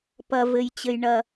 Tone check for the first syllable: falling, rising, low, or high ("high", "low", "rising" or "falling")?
low